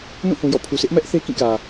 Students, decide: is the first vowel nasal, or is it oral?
nasal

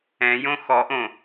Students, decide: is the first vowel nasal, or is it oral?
nasal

